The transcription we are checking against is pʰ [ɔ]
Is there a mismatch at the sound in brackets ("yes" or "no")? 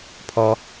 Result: no